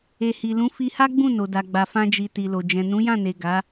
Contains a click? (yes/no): no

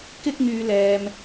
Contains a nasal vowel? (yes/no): no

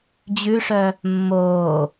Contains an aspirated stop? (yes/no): no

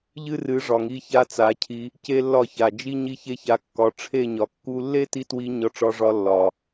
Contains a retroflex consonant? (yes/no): yes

